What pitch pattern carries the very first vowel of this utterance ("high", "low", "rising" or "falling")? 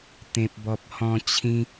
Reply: high